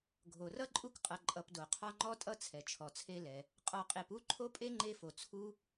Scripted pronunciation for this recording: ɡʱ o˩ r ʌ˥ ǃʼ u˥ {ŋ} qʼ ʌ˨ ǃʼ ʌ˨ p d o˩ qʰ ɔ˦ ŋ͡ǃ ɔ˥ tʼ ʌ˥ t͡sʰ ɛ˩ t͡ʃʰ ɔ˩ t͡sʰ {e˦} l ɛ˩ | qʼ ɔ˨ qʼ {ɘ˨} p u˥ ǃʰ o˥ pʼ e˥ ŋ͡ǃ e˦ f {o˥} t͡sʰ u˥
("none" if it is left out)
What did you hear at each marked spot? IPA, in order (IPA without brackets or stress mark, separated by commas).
k, e˦, e˨, o˩